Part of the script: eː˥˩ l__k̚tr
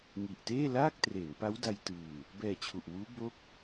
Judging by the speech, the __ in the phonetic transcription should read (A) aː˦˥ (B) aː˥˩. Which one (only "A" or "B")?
B